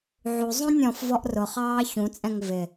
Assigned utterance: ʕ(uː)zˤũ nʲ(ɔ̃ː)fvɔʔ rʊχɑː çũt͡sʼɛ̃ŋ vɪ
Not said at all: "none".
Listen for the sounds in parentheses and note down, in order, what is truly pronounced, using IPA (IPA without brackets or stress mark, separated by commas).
u, ɔ̃